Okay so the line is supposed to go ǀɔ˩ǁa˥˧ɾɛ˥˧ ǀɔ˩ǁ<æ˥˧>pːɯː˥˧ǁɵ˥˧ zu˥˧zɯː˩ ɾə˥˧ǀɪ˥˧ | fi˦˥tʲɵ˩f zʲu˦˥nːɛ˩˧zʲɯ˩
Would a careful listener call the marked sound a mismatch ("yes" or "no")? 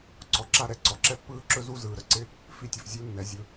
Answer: yes